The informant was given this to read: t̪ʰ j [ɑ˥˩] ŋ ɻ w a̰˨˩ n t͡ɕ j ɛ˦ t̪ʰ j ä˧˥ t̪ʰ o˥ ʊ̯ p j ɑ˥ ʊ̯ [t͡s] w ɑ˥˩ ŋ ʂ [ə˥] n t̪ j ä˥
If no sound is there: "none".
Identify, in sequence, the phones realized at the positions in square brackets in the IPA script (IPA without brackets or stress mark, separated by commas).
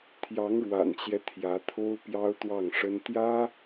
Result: ɑ˧˥, t̪, ə˥